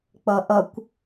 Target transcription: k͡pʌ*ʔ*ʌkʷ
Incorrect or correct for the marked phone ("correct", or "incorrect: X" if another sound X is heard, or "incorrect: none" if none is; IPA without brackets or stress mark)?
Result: correct